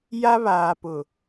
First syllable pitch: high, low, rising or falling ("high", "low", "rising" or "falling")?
high